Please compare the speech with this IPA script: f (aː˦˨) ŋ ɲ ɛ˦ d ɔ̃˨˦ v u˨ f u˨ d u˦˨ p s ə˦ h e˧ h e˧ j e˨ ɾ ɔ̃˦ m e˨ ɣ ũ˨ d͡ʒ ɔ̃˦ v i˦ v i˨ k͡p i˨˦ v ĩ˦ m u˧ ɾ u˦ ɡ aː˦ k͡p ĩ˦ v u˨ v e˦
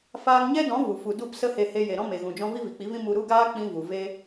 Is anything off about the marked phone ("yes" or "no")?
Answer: yes